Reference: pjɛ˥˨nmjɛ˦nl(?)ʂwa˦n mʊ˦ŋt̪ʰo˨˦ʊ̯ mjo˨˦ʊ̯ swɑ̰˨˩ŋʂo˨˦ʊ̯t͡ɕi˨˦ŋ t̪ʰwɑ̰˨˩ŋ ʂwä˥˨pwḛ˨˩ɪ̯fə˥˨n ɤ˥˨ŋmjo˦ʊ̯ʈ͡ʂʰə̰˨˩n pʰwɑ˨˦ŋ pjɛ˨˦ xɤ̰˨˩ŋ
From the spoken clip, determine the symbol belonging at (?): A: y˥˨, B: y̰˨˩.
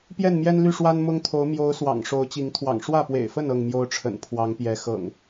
A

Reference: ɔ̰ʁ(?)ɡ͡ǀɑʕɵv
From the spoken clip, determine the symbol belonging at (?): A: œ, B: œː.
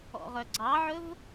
A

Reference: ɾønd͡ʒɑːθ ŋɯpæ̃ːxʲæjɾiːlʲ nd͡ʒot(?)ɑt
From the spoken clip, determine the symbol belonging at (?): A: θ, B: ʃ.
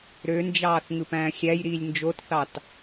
A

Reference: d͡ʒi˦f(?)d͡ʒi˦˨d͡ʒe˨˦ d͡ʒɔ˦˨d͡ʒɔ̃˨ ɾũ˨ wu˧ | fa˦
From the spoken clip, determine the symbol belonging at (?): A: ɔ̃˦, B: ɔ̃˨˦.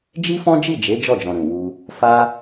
A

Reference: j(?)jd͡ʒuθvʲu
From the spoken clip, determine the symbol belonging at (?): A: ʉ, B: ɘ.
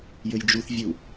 B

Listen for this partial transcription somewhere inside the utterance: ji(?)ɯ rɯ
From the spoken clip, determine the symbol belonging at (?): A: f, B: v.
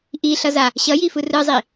A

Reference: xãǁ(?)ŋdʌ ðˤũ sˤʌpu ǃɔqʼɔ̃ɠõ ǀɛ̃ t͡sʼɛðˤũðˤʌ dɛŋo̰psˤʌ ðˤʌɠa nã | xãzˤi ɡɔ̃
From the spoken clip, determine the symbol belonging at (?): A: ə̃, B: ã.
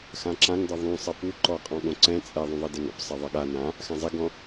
B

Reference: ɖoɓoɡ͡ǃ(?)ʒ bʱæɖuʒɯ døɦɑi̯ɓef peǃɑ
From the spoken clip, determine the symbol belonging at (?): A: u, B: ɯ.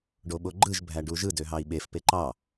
B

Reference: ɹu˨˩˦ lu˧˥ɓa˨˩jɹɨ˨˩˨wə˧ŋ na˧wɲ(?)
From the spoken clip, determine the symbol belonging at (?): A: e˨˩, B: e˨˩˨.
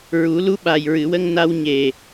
A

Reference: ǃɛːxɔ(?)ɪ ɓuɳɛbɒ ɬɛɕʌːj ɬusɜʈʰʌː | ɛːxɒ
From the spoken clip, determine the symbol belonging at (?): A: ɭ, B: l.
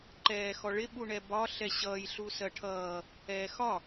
A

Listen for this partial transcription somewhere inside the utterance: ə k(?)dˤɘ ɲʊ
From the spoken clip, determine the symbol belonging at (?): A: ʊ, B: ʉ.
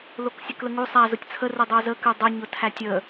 B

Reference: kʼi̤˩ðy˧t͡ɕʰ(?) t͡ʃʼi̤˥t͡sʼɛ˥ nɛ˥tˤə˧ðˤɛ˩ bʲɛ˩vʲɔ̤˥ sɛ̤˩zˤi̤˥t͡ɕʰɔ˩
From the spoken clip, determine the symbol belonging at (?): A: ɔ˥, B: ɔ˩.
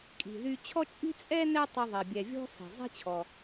A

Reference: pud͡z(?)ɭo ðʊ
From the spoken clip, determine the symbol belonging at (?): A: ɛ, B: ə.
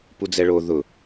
A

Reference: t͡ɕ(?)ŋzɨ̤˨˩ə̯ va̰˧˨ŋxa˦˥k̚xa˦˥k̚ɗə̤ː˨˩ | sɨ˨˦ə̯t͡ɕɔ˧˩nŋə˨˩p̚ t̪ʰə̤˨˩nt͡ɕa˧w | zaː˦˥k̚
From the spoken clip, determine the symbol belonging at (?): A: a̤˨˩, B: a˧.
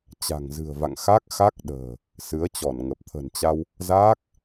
A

